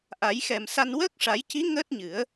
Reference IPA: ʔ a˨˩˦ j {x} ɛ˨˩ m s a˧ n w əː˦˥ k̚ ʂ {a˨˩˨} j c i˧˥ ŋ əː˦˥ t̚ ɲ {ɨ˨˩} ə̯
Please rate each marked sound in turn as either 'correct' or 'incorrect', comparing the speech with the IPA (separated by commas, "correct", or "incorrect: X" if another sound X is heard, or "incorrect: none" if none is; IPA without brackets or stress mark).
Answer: correct, incorrect: a˨˩˦, incorrect: ɨ˨˩˦